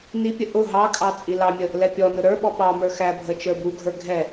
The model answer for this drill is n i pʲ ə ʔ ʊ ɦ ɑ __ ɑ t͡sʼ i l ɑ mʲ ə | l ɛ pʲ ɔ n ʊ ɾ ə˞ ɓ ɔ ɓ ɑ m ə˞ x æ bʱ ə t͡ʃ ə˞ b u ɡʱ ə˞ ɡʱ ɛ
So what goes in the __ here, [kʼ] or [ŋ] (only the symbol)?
kʼ